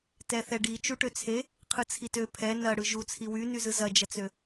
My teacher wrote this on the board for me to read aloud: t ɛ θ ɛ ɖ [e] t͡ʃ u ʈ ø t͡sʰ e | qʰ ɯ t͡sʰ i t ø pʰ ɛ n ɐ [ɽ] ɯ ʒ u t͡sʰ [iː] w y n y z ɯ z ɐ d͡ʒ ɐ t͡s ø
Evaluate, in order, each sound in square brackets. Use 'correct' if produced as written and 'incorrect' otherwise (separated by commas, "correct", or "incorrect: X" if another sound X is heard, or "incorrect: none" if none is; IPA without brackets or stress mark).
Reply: incorrect: i, correct, incorrect: i